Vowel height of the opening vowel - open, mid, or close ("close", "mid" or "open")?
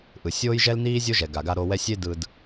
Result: close